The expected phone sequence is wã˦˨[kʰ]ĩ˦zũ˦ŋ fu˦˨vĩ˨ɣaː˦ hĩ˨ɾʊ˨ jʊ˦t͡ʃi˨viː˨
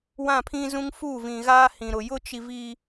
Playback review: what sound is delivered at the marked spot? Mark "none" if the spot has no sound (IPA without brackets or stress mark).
pʰ